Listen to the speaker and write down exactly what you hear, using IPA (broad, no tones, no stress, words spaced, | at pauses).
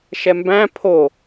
ʃɛmbæ̃ pʰo